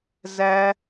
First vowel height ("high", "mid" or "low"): low